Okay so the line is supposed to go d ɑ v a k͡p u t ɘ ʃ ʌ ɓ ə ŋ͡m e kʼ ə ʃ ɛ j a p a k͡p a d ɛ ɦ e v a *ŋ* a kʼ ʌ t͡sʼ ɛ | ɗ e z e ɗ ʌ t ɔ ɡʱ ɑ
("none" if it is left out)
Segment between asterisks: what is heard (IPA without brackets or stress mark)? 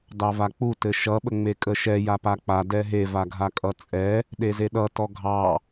ɡʱ